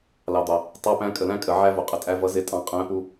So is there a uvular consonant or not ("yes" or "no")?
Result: yes